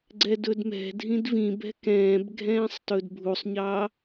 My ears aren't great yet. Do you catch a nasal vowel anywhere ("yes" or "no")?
yes